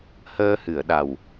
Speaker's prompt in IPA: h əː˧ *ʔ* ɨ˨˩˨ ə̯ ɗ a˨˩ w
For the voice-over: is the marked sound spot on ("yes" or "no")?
no